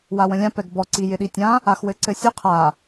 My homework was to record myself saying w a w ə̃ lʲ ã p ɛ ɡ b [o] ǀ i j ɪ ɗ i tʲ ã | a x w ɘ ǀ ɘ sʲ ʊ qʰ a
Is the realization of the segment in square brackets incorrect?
yes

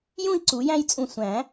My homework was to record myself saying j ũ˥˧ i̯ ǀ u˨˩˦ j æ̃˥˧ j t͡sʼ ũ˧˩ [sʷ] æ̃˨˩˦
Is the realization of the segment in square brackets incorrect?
no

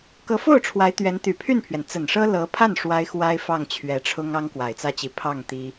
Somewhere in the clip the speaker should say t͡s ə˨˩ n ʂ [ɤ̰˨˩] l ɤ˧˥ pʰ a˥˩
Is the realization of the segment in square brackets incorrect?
yes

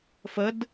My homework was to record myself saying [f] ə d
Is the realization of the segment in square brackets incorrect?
no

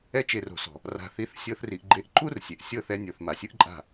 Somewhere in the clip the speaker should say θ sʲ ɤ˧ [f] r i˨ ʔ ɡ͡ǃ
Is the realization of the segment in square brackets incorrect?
yes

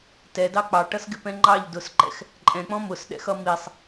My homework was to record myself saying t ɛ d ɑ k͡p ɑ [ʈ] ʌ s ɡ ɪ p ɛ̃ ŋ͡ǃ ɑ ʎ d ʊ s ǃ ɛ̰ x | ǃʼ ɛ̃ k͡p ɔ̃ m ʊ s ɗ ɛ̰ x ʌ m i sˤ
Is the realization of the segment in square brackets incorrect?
no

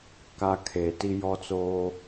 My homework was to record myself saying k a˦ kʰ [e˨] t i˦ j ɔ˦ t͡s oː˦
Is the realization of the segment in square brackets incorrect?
no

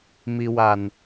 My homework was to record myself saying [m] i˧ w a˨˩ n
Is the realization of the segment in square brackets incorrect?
no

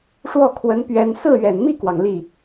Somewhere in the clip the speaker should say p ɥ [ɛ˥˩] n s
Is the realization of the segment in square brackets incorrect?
yes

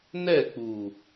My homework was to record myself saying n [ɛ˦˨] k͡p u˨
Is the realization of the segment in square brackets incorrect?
no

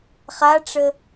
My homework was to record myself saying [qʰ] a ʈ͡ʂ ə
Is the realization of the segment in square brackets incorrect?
yes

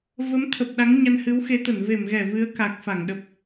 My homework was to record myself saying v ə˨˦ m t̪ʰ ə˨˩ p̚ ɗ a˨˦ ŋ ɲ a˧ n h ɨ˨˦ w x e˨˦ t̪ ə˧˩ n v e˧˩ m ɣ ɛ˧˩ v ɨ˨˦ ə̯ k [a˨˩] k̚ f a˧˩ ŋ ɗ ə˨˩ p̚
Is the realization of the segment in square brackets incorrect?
no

